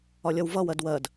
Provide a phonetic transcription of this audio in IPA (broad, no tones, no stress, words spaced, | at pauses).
ɒlʲʌwvʌwɜd wɜd